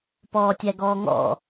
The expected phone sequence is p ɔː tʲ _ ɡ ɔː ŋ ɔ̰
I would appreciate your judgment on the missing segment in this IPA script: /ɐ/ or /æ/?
æ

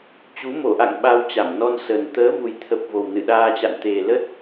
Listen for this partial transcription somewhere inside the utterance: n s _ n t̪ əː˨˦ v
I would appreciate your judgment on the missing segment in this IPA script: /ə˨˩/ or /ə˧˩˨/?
ə˨˩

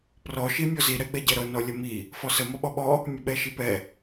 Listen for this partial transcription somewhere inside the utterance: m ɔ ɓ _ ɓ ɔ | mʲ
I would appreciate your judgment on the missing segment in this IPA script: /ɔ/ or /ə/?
ɔ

